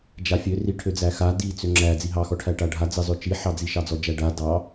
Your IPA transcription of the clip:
d͡ʒ a fʲ ø r i ʈʰ ø d͡z æ x a d i t͡s ø ŋ͡ǁ æ d͡z i ɦ ɑ x ɔ ʈʰ æ ʈ a ɖʱ a d͡z ɘ zˤ ø t͡ʃ i ħ ɑ d͡z i ʃ ɑ d͡z ɔ d͡ʒ æ ɖ a d ɑ

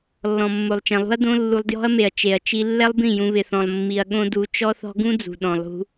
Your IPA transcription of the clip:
lː ɔ̃˨ mː o˨ lˠ t͡ʃ ɛ̃˨ lˠ ṳ˦ ɐ̯ d õ˦ lː u˧ lˠ d j ɔ̤˦ ɐ̯ m e˨ ɐ̯ t͡ʃ e˨ ɐ̯ t͡ʃ i˦ lː ɛ˦ lˠ b ĩ˦˨ j ũ˧ β ɪ˨ θ ɔ̃˨ lˠ mː i˧ ɐ̯ ɠ õ˦ d u˧ t͡ʃ ɔ˦ θ ɔ̤˦ ɡ ũ˦ d͡z ṳ˨ ɗ ɔ̃˨ lˠ ṳ˧

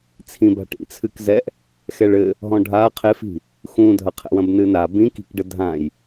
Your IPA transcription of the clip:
t͡sʰ ĩ b a̤ ʈ ḭ t͡sʰ ɨ k z ɛ ʔ | x ɛ ɭ ɘ | ɦ ɔ̃ ɖʱ a qʰ e f i̤ | x ũ dʱ ɐ qʰ ɛ̰ w ɐ̃ b n ɨ n a b ĩ k i̤ k ɖ ɘ dʱ ã j

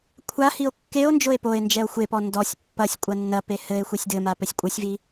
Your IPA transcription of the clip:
kʷʰ a h i o̯ kː e o̯ n d͡ʒ o e̯ p o e̯ n d͡ʒ ɛ o̯ xʷ e p ɔ n d ɔ sʲ pː ɐ sʲ kʷʼ ɐ nː ɐ p e h ɘ e̯ xʷ i sʲ d ɘ m a p ɘ sʲ kʷʼ ɘ sʲ v i

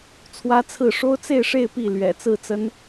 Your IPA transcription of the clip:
t͡sʰ w ä˥ t͡sʰ ɹ̩˥˩ ʂ o˥ ʊ̯ t͡s e˥˧ ɪ̯ ʂ e˥˧ ɪ̯ p i˥˩ l ɥ ɛ̰˨˩ t͡s ɹ̩˥˩ t͡s ə˥ n

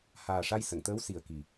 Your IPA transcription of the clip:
h aː˨˩ ʂ a˧ j s ə˨˩˨ ŋ t̪ əː˧˥ w s i˨˩ ə̯ k i˨˩

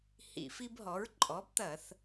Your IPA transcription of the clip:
h ḭ˧˩˧ f i˦ b ɦ ɔ˩˥ ɹ ǃʼ ɔ˩˥ b t̪ ɐ˧˩˧ θ

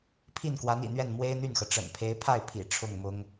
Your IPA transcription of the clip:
pʰ i˥˩ n k w a˧˥ n ḭ˨˩ n̪ ɥ ɛ˥˩ n m w e˥ ɪ̯ n̪ y˥˩ n x ɤ˩ ʈ͡ʂ ə̰˨˩ n pʰ e˧˥ ɪ̯ pʰ a˥˩ ɪ̯ pʰ ḭ˨˩ ʈ͡ʂʰ ʊ˥˩ ŋ m ʊ˥ ŋ

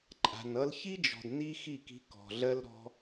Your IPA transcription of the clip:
ǃʼ a̤˨ n ʌ˧ l ç i˦ d͡ʒ ɔ̤˨ d n i˦ x i˦˨ k i̤˧ k ɔ̤˨ ɮ ɜ˦ l ɾ ɔ̤˦

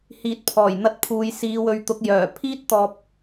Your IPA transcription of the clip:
h iː˨ t̚ pʰ ɔː˨˩ j n̪ ɐ˧ t̚ pʰ uː˨ j s iː˨˧ w ɵ˨˧ ɥ t̪ ʊ˨˥ k̚ j œː˨˩ pʰ iː˥ t̚ t̪ ɔː˨ p̚

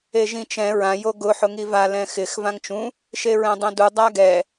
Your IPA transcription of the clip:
e ʒ ĩ t͡ʃ ɛ̃ ɹ ã j o ɡ ʊ ħ ʊ ŋ i v a l ɛ̃ x ɪ x v ã ŋ t͡ʃ ũ | ʃ e ɹ ɛ̃ dˤ ẽ d u dˤ a ɡ ɛ

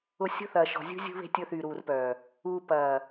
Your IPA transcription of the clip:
ʊ˨ sʲ o̤˦ θ ɐː˨ ʃ ɔ̤˨ zʲ ṳ˦ zʲ ṳ˦ β e̤˦ tʲ ʊ˦ θ yː˨ ɾ uː˨ r p œː˨ | uː˨ p ɐː˨

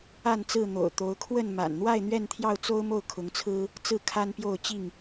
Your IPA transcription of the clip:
a˥˨ n t͡s ɹ̩˥˨ n̪ o̰˨˩ ʊ̯ t̪ o˨˦ ʊ̯ kʰ w ə˥˨ n m a̰˨˩ n n̪ w a˥˨ ɪ̯ n̪ ɥ ɛ˥˨ n t̪ʰ j ɑ˥˨ ʊ̯ t͡s o˦ ʊ̯ m o˥˨ ʊ̯ kʰ ʊ˨˦ ŋ t͡sʰ ɹ̩˦ | t͡s ɹ̩˥˨ kʰ a˦ n p j o˥˨ ʊ̯ t͡ɕ i˥˨ ŋ

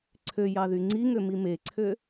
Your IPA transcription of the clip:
ǀʰ ø j ɑ ð y ŋ͡ǀ i ŋ ø m i m e ǀʰ ø

